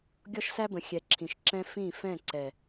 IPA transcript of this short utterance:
ɡʲ ɔ˦ ʃ s æ˦ b ə̃˨ xʲ ɛ˨ ǁʰ ĩ˨ ʃ ǁ ɛ̃˦ f ĩ˦˨ f ɛ̃˦˨ ǀ ɛ˨

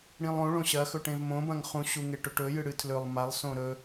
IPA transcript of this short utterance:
ɽ ĩ lˠ õ ɭ õ ɕ ɐ x ɵ ʈ ẽ v m õ b ɐ̃ ŋ χ ũ ɕ u ŋ e ʈ ɵ ʈ ɵ j ɨ ɽ ɨ tʰ l ɵ lˠ m a lˠ s õ ɾ ɵ

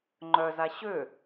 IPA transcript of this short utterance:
ŋ͡ǃ œ z a ɕ ø

